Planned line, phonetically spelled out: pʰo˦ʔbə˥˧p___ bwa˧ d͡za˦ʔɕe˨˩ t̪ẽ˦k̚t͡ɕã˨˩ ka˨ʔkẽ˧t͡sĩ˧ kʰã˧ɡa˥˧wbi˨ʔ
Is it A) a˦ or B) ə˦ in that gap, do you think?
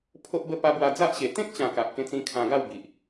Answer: A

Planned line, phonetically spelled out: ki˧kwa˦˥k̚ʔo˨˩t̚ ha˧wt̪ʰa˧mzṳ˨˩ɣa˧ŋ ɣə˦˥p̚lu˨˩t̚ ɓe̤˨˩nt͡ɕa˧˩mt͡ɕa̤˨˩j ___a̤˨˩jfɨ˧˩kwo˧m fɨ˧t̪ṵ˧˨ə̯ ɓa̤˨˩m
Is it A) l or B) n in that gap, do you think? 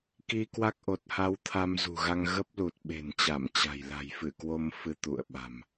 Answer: A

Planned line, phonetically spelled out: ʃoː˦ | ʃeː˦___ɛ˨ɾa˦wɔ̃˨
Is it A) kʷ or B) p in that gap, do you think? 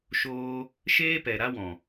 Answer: B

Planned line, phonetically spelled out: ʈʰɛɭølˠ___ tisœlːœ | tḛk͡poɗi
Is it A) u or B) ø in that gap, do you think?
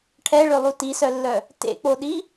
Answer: A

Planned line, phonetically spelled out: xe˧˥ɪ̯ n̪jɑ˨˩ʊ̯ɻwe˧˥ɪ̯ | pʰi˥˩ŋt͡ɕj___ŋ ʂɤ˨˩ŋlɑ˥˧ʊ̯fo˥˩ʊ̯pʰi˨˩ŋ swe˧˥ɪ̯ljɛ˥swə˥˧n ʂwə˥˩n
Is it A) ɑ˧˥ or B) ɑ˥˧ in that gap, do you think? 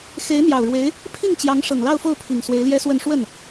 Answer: A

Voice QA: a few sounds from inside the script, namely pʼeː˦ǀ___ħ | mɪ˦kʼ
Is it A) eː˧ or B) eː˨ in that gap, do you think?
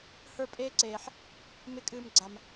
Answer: B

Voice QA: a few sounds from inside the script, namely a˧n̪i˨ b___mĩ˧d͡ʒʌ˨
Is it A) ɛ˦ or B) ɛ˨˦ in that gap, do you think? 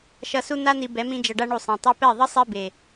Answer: B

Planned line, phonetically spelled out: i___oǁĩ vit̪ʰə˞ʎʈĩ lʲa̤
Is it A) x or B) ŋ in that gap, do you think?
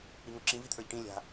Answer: B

